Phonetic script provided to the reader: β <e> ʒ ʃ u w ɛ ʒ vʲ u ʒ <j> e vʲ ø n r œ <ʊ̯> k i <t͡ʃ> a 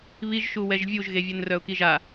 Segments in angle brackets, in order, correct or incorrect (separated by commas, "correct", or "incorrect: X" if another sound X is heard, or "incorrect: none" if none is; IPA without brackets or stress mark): incorrect: i, incorrect: ɣ, correct, incorrect: ʒ